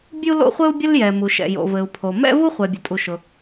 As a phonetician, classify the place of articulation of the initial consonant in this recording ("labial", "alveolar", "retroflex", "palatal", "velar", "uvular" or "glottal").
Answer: labial